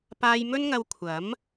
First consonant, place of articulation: labial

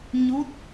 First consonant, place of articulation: palatal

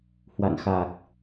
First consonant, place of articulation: glottal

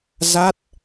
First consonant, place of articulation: alveolar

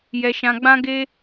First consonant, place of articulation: palatal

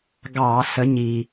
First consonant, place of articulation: velar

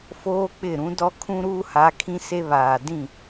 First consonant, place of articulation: labial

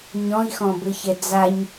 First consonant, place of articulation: palatal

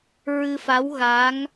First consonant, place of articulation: alveolar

